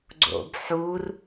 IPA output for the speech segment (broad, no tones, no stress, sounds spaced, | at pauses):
ɡ͡ǀ o̰ b ħ u r